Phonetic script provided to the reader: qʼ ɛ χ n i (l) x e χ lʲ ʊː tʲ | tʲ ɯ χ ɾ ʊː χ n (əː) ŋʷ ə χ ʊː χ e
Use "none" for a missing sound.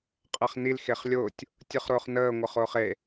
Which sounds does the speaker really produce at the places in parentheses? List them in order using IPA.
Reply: l, əː

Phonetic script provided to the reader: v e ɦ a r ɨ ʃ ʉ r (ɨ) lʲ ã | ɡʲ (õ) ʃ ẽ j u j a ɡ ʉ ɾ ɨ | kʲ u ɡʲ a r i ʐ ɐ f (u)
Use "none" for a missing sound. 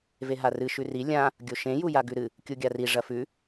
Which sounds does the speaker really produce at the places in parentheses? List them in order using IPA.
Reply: i, o, ʉ

